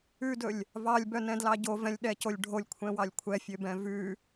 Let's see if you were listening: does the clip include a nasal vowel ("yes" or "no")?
yes